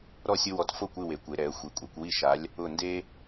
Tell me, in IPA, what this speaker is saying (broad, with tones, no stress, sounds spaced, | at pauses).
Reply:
ɾ ɔ˥˨ sʲ ʊ˦ w ɔ˨˥ t f o˥˨ kʷ ɪ˥˨ w e˩˧ kʷ e˩˧ ɾ ɛ˩˧ ə̯ xʷ i˩˧ kʷʼ e˩˧ kʷ w i˥˨ ʃ a˨˥ lʲ | ʊ˧˩ n d e˦